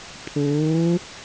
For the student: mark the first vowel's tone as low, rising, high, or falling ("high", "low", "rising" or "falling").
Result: rising